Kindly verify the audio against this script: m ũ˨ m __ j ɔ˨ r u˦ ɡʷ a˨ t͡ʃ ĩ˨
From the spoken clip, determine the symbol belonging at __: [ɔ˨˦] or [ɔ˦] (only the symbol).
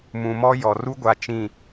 ɔ˦